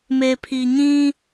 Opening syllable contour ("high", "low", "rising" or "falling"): low